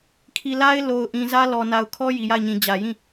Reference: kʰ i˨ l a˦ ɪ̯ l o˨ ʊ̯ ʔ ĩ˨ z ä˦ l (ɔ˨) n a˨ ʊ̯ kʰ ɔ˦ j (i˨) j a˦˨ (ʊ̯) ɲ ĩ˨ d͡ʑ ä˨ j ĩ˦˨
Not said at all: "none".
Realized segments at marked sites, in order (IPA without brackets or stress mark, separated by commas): ɔ˨, i˨, ɪ̯